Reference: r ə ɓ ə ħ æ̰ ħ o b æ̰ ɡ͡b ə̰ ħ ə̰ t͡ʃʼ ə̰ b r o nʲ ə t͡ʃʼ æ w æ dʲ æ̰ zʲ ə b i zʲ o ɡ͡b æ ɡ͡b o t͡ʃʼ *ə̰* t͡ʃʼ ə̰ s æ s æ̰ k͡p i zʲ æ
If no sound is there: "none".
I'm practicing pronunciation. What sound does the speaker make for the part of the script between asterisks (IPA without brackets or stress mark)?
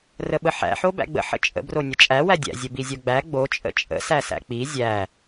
ə̰